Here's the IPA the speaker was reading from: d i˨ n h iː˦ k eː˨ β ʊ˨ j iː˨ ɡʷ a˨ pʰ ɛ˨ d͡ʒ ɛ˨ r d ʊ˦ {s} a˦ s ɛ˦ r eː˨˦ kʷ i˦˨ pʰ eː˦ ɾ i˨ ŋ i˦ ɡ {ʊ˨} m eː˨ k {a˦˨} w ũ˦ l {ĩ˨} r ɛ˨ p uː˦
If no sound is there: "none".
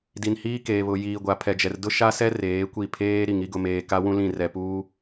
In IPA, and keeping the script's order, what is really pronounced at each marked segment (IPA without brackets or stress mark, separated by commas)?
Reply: ʃ, ʊ˨, a˦, ĩ˦˨